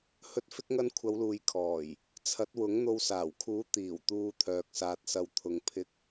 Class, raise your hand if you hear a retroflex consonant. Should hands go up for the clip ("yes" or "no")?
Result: no